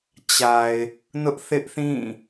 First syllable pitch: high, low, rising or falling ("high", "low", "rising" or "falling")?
low